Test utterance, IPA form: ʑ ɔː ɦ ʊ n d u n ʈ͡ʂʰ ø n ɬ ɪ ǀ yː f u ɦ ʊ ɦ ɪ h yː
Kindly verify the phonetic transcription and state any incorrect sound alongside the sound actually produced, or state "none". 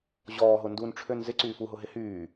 ɬ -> z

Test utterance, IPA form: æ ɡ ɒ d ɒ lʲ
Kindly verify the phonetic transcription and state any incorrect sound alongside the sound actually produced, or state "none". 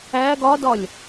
none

